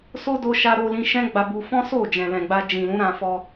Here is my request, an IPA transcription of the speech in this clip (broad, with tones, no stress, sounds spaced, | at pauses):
s o˦ d o˧ ʃ a˧ ɾ o˧ l ĩ˧ ʃ ɛ̃˦ ɡ͡b a˧ b u˧ f ɔ̃˦ s o˦˨ d͡ʒ ɛ̃˨ l ɛ̃˨ ɡ͡b a˧ d͡ʒ ĩ˨ l ũ˨˦ ɾ ã˧ f ɔ˧